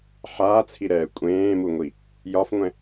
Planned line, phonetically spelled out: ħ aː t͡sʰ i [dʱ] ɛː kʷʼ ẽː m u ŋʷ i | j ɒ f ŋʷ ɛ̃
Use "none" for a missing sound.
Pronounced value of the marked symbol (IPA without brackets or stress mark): ɾ